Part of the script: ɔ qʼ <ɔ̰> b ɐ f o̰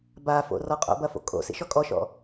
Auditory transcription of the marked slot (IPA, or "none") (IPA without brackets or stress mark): o̰